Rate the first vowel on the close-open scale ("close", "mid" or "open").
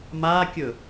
open